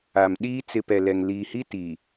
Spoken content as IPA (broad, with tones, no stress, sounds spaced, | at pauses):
a˨ m ɗ iː˦ t͡s ɪ˦ p ɛ˨ l ɛ˨ ŋ l iː˨ h i˦ t i˨